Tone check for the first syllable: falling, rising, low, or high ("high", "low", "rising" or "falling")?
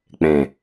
low